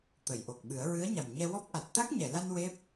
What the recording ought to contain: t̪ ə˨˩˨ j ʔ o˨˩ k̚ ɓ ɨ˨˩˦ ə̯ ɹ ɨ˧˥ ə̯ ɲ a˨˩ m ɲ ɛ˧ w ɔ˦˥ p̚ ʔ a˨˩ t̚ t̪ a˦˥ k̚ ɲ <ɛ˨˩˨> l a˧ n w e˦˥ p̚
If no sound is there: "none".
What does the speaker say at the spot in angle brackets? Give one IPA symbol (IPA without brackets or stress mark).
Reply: ɛ˨˩˨